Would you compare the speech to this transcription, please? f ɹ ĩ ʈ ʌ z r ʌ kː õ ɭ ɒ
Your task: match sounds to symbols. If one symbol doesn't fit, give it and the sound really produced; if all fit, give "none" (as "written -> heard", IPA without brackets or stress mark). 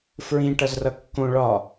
none